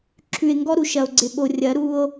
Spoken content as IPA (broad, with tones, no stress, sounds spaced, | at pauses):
ǁʰ ʉ˨ e̯ ŋ ɡ ɔ˦ ɾ u˨ ʃ ɐ˨ o̯ ɡ͡ǀ ɪ˨ ɓ o˨ rʲ ɐ˨˦ ɾ u˦ o̯